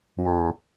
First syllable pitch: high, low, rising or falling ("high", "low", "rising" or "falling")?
low